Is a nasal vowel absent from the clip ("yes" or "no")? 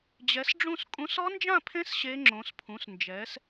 no